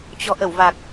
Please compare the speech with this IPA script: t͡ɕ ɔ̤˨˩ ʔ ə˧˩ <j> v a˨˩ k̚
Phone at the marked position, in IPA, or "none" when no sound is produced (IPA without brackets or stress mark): w